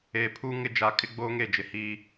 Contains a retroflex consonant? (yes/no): no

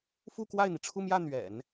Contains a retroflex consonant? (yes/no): yes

